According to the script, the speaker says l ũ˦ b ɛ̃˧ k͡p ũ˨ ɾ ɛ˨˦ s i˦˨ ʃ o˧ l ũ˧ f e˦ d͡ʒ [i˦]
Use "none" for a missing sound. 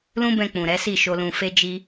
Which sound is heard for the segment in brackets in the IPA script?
i˦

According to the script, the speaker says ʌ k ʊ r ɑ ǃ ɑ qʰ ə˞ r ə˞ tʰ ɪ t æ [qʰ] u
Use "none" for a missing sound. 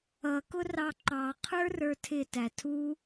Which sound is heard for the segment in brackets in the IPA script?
tʰ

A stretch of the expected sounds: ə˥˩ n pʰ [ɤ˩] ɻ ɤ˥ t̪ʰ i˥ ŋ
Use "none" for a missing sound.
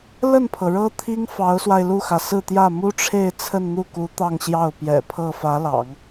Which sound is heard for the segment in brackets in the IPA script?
ɤ˩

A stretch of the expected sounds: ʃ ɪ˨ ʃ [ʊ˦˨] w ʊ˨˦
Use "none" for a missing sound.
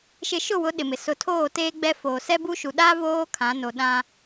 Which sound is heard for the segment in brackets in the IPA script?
ʊ˦˨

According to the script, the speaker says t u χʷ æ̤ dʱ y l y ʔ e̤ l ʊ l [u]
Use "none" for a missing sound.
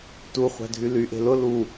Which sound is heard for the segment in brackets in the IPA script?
u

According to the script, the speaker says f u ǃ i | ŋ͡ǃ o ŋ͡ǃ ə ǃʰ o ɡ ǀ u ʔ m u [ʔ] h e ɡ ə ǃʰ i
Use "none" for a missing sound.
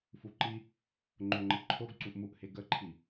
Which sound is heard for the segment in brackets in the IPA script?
ʔ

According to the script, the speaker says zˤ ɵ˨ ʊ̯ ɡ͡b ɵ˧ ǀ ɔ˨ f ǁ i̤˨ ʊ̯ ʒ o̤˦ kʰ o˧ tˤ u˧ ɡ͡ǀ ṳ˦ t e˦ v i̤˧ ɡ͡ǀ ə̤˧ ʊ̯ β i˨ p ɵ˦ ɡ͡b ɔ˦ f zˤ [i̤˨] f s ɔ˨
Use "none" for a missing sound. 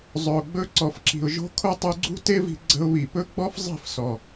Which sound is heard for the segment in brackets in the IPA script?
i̤˦˨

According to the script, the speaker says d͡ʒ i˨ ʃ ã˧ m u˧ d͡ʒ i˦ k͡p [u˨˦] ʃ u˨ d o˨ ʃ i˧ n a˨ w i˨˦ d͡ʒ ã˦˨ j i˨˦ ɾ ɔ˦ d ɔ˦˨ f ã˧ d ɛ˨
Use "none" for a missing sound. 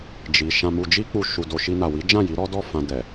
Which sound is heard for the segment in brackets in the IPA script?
u˧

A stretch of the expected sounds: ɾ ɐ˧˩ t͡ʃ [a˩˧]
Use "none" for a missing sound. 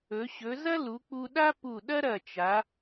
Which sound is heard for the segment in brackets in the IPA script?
a˩˧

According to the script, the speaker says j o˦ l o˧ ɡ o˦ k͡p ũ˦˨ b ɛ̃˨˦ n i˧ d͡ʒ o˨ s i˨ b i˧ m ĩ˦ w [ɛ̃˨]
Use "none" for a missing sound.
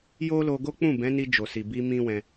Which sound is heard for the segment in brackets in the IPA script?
ɛ̃˧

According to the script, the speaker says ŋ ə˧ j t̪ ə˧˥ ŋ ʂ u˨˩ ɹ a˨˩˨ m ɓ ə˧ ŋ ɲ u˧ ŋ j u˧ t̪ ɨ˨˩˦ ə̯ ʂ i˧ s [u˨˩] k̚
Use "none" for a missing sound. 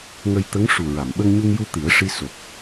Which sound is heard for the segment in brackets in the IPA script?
o˨˩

